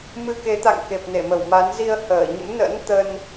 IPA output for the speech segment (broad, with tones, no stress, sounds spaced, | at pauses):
m ɨ˧ k e˨˦ t̪ a̰˧˨ ŋ k e˨˩ p̚ n e˧˩ m ə˧˩ w m a˨˦ n z i˧ ə̯ h əː˧˩ ɲ ə̰˧˥ m n ə̰˧˥ n t̪ ə˧ n